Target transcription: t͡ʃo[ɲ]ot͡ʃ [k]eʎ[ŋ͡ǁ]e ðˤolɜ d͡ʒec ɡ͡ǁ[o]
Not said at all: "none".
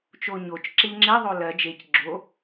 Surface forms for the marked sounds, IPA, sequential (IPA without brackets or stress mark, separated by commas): ɲ, ǁ, ŋ͡ǁ, o